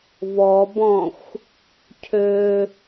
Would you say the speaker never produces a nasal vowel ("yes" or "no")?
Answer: no